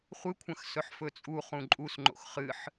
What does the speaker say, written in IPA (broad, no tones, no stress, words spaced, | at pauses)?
χʷɨkʷʰɐ̃x sɵħfɵt͡sʼu χũǃʼusŋ͡ǃo̰x χɨħ